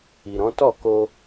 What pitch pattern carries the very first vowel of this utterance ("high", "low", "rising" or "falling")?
low